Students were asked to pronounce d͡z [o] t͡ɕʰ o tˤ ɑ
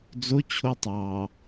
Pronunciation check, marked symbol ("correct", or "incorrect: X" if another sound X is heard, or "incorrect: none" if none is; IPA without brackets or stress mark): correct